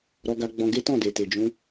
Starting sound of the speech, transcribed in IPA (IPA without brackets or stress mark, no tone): ɾ